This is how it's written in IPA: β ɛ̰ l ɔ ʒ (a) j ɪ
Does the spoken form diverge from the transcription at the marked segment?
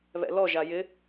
no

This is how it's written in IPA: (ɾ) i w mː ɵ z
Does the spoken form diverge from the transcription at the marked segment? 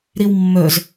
no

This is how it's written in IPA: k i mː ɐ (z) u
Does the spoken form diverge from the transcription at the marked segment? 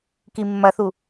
yes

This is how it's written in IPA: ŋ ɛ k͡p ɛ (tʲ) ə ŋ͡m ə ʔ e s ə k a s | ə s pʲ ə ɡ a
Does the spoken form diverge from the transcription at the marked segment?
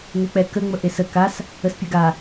yes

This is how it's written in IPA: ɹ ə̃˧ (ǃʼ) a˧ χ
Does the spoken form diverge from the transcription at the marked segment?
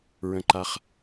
yes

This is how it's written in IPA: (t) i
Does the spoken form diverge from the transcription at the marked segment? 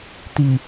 no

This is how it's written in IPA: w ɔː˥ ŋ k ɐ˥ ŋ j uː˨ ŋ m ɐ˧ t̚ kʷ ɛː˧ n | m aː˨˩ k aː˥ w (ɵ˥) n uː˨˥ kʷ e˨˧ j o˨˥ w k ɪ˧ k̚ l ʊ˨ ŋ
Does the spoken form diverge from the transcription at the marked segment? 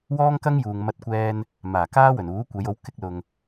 yes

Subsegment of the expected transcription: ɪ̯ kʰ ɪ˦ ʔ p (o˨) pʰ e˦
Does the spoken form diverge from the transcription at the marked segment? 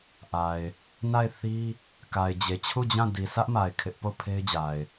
yes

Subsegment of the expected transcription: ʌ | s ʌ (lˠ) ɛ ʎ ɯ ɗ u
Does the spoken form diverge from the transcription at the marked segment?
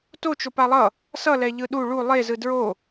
yes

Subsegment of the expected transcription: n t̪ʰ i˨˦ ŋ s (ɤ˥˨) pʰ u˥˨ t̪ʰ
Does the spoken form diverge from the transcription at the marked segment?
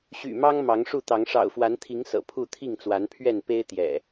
yes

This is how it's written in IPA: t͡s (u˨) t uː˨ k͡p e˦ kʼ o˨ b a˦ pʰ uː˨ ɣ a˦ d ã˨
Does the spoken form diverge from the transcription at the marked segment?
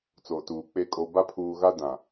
yes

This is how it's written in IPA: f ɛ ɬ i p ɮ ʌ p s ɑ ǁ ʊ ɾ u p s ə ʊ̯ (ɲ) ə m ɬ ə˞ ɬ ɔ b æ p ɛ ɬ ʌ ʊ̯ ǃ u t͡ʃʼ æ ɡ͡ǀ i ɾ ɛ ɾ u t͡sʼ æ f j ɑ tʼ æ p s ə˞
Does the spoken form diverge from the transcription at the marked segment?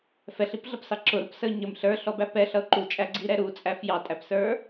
no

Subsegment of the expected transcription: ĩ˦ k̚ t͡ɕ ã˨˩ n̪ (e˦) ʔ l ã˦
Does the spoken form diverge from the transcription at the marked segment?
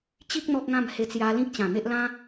no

